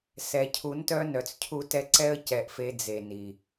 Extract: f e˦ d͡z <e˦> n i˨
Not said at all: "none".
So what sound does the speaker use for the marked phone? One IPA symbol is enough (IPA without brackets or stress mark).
e˨